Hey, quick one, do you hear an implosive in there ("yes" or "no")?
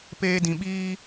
yes